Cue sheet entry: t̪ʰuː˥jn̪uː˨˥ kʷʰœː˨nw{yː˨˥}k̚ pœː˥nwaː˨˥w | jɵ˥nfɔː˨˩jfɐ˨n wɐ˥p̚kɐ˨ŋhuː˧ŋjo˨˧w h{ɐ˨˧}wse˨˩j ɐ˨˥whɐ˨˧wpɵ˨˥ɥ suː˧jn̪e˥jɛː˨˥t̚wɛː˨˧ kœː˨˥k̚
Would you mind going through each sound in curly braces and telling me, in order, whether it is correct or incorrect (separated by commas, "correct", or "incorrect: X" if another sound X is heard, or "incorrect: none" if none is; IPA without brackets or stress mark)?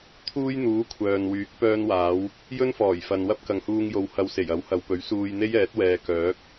correct, correct